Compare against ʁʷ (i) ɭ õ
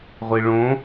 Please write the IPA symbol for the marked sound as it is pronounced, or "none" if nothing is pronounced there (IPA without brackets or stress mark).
i